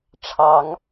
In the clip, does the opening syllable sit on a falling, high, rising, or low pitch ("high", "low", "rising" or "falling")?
rising